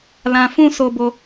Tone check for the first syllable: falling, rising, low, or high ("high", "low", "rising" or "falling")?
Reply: low